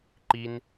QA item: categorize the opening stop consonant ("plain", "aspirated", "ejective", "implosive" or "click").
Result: click